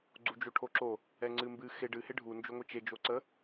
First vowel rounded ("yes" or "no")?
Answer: yes